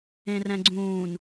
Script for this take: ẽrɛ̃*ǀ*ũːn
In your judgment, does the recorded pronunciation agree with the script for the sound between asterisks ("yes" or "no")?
no